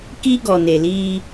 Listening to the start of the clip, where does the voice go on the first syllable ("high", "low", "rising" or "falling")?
high